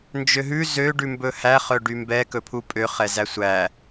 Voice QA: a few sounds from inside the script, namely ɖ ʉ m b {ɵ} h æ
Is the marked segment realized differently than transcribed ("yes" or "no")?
no